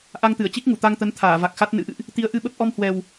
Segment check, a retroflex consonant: absent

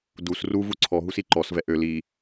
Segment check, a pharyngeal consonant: absent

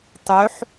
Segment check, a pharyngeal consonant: present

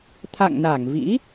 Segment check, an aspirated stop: present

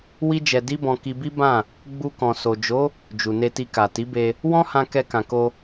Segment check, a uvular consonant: absent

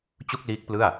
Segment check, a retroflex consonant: absent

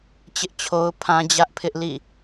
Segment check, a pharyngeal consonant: absent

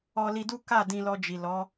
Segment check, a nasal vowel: present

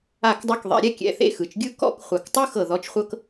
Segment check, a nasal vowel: absent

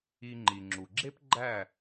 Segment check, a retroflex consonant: absent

